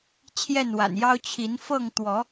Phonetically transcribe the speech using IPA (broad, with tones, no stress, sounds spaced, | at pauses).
t͡ɕʰ j ɛ˥˨ n w a̰˨˩ n j ɑ˦ ʊ̯ t͡ɕʰ i˨˦ n f ɤ˥˨ ŋ t̪ w ɔ˨˦